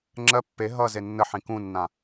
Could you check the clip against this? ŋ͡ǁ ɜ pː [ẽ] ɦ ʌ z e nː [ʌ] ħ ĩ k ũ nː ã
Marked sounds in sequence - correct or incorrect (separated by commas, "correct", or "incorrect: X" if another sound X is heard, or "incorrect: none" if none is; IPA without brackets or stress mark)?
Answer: incorrect: e, incorrect: ə